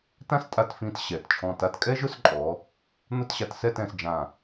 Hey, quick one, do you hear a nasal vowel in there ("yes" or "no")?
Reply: yes